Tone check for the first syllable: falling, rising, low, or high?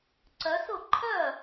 rising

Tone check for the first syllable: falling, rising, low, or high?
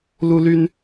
high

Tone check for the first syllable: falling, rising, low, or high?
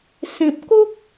low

